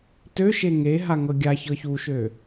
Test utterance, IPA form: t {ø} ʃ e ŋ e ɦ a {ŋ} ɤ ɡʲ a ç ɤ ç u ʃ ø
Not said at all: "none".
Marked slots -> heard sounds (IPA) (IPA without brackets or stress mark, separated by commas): ø, ŋ